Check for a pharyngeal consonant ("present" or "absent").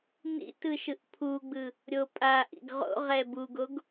absent